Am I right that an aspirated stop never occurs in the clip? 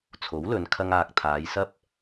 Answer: no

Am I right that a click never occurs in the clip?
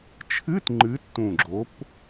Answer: no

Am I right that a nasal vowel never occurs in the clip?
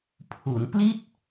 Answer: yes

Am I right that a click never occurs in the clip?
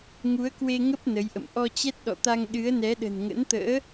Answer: yes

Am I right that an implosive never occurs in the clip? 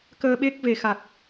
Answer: no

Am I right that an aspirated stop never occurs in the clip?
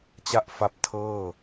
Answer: no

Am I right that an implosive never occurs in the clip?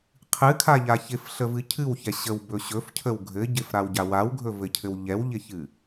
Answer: yes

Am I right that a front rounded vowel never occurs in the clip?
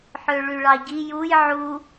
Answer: no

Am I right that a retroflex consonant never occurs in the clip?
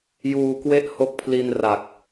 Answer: yes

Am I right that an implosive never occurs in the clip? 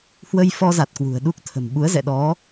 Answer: no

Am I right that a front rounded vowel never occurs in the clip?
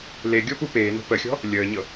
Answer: yes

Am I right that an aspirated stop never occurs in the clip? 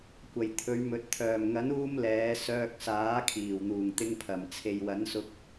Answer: no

